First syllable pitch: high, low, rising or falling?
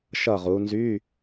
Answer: falling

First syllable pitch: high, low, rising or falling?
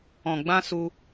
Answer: low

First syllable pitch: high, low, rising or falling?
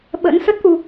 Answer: rising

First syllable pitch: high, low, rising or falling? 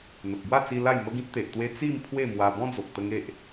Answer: low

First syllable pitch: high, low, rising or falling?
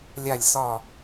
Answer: falling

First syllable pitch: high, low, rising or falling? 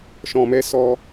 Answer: low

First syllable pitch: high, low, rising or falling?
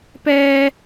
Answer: high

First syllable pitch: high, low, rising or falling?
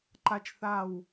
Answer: high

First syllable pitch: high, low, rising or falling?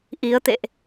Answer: rising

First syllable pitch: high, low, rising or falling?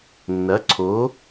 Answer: rising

